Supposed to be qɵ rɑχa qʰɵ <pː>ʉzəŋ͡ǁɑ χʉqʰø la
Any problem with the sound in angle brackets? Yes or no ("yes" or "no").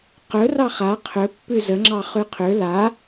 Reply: no